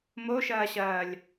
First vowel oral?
yes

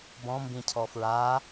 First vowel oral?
no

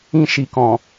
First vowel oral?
no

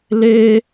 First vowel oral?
yes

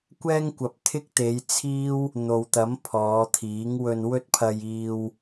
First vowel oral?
yes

